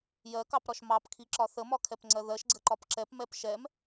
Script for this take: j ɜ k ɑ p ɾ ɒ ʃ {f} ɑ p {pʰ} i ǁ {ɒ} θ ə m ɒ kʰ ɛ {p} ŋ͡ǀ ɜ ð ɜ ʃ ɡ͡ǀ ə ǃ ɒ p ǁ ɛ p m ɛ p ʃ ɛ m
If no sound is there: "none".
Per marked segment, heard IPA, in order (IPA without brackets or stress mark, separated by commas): m, kʰ, ɒ, p